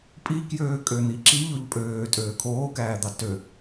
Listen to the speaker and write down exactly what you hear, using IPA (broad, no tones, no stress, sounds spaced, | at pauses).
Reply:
pʼ i k j øː kʼ ø n̪ i ǁ i ʎ o ʎ pʼ øː tʼ øː kʰ oː k æː d̪ ɑ t ø